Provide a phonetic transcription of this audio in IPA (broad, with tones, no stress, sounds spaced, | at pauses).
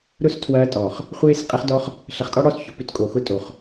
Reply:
ɾ ʊ˦ s tʰ w ɐː˧ tʼ ɔ˨ χ | χʷ eː˦ s qʼ ɛ˧ χ d ɔ˧ χ | ɬ ɐ˧ χ tʼ ɔ˦ ɽ ɔ˦˨ s ç ʊ˨ p ʏ˦ t kʼ o˨ x ʊ˦ tʼ o˨ χ